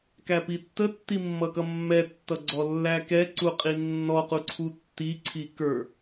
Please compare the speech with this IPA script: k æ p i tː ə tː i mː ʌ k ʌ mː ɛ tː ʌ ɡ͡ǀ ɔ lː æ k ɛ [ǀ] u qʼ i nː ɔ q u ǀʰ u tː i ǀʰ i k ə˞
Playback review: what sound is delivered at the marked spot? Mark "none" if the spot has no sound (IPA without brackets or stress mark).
ǀ